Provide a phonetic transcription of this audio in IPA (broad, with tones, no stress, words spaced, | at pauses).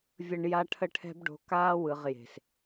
vʲə˨ɳ ja˦ʈʰə˦ʈʰɛ̤˦b ɖo̤˨kaː˦wɯ˨ʁ je̤˨s